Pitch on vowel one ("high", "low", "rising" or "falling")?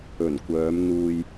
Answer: low